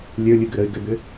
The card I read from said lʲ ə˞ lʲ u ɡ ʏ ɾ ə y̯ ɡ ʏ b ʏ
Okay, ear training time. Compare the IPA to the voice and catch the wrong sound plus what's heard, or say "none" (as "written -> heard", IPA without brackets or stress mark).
none